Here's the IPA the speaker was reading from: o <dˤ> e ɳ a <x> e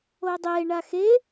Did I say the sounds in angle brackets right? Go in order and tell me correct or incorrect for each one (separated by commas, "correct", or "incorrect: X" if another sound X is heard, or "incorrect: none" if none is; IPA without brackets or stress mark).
correct, correct